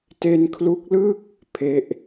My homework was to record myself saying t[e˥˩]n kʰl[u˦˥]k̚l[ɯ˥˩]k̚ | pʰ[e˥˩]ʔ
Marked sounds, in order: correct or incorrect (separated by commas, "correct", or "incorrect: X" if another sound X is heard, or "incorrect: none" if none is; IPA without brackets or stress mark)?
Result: incorrect: e˧, correct, correct, incorrect: e˦˥